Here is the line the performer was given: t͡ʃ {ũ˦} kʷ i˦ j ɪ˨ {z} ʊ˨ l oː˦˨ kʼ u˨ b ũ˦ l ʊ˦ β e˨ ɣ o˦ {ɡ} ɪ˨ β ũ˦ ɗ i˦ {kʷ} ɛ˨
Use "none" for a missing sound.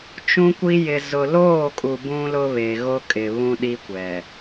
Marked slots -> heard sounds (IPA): ũ˦, z, kʼ, kʷ

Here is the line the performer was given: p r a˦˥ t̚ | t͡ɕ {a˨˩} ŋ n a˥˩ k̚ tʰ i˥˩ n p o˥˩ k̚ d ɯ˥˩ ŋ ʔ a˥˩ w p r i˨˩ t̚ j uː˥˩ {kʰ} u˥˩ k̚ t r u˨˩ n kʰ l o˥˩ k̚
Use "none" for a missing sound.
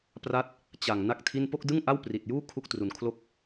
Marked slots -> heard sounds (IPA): a˨˩, kʰ

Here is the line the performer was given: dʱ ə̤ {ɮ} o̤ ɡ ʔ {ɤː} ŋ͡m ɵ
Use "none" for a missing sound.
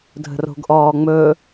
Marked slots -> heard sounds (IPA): r, ɔː

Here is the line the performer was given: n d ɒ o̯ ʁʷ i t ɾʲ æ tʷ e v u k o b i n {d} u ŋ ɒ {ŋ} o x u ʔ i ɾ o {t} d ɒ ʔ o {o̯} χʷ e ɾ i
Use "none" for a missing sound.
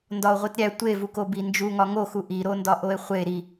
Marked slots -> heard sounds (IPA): d͡ʒ, ŋ, n, e̯

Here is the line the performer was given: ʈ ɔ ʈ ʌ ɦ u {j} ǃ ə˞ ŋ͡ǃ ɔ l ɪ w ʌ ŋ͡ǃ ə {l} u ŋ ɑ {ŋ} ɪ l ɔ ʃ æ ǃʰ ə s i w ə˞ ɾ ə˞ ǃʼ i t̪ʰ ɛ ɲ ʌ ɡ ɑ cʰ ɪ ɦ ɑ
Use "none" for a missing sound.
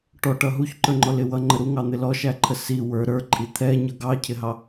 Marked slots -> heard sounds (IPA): ç, ɾ, n̪

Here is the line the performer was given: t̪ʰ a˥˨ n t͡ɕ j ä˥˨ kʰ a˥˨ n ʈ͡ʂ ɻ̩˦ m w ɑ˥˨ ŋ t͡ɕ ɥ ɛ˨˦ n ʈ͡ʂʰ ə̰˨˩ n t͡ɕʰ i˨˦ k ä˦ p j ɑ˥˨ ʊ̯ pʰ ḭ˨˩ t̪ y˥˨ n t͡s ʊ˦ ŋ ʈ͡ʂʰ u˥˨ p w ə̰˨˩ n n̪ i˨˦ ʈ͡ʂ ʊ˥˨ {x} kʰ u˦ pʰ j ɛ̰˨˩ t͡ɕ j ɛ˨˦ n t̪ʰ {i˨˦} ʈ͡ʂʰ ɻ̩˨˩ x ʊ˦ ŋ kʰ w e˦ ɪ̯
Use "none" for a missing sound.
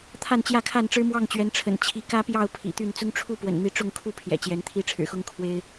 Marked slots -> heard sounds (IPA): ŋ, i˦

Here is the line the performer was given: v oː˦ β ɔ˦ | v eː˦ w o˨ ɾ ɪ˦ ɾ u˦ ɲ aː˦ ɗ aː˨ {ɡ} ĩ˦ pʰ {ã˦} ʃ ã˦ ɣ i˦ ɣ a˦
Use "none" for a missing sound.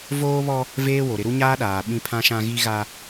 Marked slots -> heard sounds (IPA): ɓ, ã˦

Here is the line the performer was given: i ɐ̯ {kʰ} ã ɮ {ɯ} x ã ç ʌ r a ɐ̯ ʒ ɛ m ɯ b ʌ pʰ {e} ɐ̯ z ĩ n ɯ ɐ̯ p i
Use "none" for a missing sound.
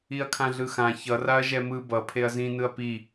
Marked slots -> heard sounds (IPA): kʰ, ɯ, e

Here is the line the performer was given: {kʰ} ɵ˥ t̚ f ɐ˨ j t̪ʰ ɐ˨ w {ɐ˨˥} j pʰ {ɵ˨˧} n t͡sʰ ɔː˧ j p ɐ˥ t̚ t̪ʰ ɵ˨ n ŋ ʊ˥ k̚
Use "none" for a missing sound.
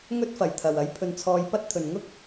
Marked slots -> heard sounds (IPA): ŋ, ɐ˨˥, ɵ˧

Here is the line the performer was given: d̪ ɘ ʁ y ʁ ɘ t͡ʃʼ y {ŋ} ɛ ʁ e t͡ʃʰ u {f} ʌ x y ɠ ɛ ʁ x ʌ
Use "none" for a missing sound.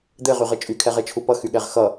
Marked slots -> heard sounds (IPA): kʰ, p

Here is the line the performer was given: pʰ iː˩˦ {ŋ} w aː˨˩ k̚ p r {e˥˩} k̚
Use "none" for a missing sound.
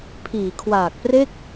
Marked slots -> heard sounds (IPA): kʰ, e˥˩

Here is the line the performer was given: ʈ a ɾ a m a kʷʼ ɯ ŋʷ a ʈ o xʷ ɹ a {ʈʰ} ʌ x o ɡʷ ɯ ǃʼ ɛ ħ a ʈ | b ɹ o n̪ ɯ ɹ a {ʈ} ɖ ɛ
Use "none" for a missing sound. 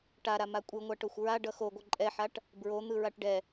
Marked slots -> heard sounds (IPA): ɖ, ʈ

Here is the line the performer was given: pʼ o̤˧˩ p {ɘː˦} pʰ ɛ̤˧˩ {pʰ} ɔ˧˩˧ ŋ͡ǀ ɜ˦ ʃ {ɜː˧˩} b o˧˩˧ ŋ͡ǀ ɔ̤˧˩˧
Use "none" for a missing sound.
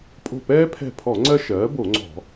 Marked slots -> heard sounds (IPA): ɛː˦, pʰ, ɜː˩˥

